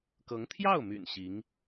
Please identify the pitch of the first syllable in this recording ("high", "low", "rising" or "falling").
rising